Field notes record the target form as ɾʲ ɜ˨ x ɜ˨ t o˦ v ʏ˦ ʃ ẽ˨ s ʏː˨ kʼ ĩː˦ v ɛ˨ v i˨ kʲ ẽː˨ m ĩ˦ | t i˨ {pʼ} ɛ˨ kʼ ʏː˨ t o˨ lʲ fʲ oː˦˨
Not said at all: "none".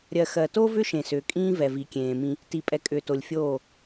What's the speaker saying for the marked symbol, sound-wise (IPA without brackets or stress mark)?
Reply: pʼ